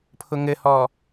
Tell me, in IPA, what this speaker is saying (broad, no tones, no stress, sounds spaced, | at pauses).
pʰ ʊ ŋ ɘ h ɔ